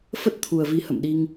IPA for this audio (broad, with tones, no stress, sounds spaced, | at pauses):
f ə˦˥ t̚ t̪ʰ u˨˩ ə̯ v i˨˦ h ə̰˧˨ m ɗ i˧ ŋ